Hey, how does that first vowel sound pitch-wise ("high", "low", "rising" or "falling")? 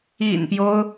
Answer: low